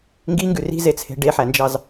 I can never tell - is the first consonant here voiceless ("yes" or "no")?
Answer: no